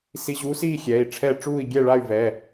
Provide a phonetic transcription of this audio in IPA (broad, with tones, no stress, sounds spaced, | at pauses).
s i˧ ʑ uː˧˥ s iː˥˧ xʲ ɛː˩˧˩ i̯ ʈ͡ʂʰ ɛː˥˧ ʈ͡ʂ uː˥˧ i̯ ɡʲ ɛ˥˧ ɭ a˥˧ y̯ v ɛː˩˧˩